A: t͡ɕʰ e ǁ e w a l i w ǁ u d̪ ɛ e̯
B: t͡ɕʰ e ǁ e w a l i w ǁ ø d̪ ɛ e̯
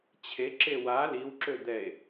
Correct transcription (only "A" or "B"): B